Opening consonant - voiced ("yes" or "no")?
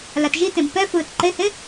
yes